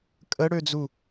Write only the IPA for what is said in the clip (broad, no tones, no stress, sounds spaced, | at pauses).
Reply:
kʼ ə ɽ ø d͡z u